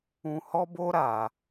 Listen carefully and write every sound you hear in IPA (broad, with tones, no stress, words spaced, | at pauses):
ũ˧hɔ˦bo˦ ɾa˧